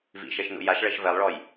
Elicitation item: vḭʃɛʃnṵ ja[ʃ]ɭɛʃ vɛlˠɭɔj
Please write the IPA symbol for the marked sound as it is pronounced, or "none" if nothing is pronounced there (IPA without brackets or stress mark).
ʃ